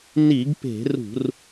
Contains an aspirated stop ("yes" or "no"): no